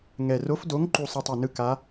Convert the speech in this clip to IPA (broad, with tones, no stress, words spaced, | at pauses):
ŋɛ˨˩ro˨˥fdo˨˥ŋ ǃu˦˨sˤe˦˨tˤe˨˩nɯ˦˨ ka˨˥